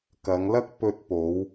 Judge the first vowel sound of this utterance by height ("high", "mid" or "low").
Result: low